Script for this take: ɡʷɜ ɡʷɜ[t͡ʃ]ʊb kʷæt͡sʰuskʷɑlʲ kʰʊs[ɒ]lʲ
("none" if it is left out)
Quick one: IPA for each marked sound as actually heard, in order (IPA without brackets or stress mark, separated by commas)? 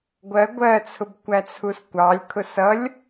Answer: t͡sʰ, ʌ